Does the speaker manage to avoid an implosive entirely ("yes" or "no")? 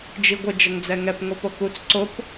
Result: yes